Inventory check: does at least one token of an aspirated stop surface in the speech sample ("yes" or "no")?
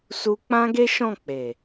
no